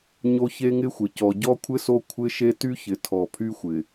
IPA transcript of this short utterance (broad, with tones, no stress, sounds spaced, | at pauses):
ɲ o˦ ç e˦ ŋ ɪ˦ xʷ ɪ˨ c ɔ˨ ɟ ɔ˦ kʷʰ ɪ˦ s o˦ kʷʰ ɪ˦ ʃ e˦ t y˦ ç ɪ˨ tʰ ɔ˨ pʰ y˦ xʷ ɪ˨